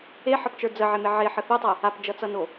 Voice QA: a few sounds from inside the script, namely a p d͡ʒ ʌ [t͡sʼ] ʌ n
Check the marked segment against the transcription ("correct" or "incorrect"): incorrect